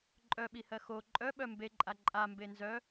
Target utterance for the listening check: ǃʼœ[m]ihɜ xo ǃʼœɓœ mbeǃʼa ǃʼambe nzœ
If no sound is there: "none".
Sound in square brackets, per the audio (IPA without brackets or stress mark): ɓ